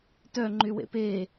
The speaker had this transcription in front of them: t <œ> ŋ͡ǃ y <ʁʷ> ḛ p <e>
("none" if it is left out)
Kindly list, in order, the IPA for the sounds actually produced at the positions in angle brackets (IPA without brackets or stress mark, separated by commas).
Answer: œ, w, e